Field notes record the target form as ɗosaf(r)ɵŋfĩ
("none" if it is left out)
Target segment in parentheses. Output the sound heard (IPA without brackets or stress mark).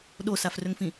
r